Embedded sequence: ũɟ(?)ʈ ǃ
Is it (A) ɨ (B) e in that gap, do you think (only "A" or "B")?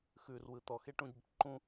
B